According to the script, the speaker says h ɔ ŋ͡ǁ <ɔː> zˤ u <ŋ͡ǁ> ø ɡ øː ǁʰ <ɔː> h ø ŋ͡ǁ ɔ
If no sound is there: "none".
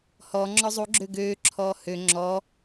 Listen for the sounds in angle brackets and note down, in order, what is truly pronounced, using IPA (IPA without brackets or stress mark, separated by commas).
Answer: ɔ, ɡ͡ǁ, ɔː